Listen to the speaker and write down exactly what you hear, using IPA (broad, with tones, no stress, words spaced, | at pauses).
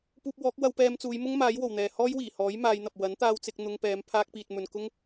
puː˧p̚wɔː˨˥k̚ wɐ˧wpɛː˧mt͡suː˨˧j mʊ˥ŋmaː˨˥jwo˨˩wn̪ɛː˨ hɔː˥jwiː˨˩hɔː˨˥j maː˨˧jn̪ɐ˨p̚ wɐ˨˥nt̪aː˧wt͡sɪ˧k̚ n̪ʊ˧ŋpɛː˨˧m pʰaː˥k̚piː˧t̚mɵ˧n kʊ˥ŋ